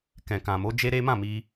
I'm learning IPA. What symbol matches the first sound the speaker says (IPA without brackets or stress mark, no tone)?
k